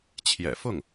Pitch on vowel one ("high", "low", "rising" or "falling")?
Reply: low